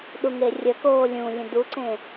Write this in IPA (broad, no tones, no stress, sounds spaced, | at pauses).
ɗ u ŋ e rʲ ə k oː lʲ ũ lʲ ə̃ d u ǀ ẽ